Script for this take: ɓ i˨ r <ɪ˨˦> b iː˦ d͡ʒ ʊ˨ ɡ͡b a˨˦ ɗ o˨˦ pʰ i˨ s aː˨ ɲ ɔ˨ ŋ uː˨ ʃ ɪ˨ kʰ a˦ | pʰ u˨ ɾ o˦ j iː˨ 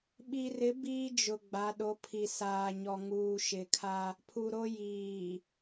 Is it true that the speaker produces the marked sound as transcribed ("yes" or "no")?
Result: yes